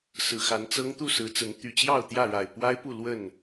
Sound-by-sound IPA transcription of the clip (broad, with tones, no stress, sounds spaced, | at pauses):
s ɹ̩˨˩ x a˨˦ n t͡s ɤ˦ ŋ t̪ u˥˨ s ɹ̩˨˦ t͡s ə˨˦ n t̪ y˨˩ t͡ɕ j ɑ˥˨ ʊ̯ t̪ j ä˥˨ ɻ a˨˩ ɪ̯ p w a˦ ɪ̯ p u˥˨ l w ə˥˨ n